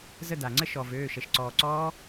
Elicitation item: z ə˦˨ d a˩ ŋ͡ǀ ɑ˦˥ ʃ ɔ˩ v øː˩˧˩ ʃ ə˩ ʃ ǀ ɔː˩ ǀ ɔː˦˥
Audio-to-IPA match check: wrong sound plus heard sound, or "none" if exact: ɑ˦˥ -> ə˦˥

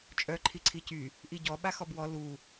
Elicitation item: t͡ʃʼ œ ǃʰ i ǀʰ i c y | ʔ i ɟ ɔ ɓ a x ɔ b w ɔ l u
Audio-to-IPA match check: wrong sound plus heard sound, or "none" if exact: none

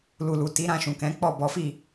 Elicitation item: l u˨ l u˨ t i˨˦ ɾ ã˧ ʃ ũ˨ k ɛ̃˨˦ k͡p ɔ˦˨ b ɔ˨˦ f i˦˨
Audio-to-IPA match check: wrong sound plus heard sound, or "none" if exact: none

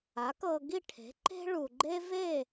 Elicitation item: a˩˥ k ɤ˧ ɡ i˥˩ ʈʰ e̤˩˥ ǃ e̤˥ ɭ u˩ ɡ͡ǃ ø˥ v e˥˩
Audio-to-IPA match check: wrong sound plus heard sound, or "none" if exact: ø˥ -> e˥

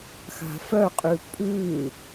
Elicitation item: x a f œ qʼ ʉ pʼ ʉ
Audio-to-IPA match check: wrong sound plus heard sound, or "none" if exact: a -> a̤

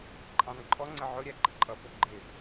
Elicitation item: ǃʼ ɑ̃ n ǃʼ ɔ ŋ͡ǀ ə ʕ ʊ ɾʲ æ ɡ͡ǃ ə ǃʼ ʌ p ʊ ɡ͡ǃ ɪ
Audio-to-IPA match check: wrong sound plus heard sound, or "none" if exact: none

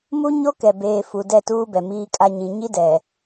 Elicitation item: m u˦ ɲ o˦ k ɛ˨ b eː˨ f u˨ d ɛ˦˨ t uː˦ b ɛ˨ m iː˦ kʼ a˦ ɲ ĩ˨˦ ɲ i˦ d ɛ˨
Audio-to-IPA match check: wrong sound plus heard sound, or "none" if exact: none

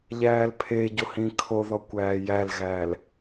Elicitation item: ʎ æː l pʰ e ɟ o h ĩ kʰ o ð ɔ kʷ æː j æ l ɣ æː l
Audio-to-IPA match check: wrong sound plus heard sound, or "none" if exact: none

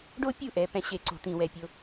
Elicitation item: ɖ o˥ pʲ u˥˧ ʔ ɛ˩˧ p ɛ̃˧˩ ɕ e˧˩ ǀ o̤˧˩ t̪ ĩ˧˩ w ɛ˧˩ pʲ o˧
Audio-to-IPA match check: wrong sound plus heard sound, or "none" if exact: none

